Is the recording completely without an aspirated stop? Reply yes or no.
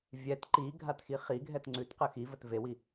yes